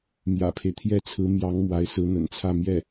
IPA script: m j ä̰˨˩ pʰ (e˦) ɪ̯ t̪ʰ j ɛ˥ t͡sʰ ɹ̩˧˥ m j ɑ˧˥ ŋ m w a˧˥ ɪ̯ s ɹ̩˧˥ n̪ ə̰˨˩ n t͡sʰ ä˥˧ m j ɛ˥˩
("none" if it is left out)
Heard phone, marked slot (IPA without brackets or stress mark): e˦